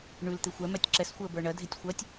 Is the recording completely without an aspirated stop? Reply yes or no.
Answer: yes